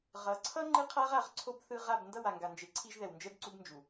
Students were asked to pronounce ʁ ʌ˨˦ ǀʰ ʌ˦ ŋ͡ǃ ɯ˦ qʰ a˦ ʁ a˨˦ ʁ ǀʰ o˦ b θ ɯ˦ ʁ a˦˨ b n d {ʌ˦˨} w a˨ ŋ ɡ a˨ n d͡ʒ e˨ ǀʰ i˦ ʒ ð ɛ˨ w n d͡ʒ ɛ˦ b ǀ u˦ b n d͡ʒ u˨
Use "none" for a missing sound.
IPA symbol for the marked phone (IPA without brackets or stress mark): ʌ˦˨